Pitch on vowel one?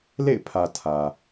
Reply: falling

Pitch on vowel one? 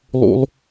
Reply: high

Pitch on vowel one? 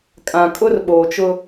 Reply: low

